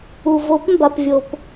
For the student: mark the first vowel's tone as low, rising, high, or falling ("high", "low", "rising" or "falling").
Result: low